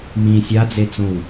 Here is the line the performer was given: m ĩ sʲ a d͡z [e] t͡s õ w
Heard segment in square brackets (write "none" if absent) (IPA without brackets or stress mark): e